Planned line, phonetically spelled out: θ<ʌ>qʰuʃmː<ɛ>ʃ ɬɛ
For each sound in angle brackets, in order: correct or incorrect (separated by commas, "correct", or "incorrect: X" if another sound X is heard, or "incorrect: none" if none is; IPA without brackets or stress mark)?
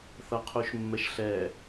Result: correct, correct